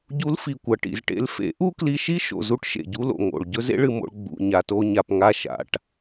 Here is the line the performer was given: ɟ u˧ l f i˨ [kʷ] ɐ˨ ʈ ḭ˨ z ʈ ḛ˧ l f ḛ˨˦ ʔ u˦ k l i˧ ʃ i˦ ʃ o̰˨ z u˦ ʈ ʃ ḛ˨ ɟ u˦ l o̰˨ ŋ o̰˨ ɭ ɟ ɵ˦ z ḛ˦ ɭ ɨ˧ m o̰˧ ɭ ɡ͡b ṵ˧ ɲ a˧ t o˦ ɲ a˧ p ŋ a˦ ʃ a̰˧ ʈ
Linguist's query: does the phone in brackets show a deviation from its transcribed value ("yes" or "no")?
no